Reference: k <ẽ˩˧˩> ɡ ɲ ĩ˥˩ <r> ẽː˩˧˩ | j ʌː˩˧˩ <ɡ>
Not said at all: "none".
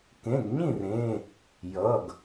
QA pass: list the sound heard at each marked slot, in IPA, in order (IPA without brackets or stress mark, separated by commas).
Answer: ẽ˩˧˩, r, ɡ